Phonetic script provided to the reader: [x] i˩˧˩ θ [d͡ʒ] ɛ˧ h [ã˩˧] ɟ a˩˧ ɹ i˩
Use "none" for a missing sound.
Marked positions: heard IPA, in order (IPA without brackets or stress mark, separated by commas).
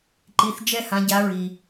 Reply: ǃ, d͡ʒ, ã˩˧